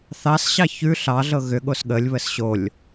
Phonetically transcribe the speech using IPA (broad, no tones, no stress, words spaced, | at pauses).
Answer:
θɑsɕɑ çʉ ɬɑ ɮɤɣʏɠos ɠəlʲβəs ɕolʲ